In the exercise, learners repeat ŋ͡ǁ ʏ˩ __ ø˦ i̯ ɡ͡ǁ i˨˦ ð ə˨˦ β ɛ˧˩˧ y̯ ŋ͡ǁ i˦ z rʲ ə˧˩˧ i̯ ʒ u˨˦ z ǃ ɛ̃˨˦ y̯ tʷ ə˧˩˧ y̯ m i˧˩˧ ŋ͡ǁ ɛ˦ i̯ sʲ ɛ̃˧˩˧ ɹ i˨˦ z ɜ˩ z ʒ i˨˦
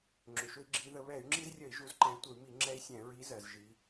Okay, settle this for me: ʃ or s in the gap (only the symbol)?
ʃ